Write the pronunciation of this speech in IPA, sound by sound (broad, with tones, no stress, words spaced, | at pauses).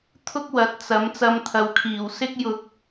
t̪ʰʊ˥k̚wɐ˨˥t̚ t͡sɐ˨˥m t͡sɐ˧mt̪ʰɐ˨wkʰiː˨˩w sɪ˥k̚jʊ˧k̚